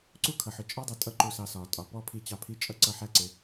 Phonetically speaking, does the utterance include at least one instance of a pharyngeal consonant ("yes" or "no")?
yes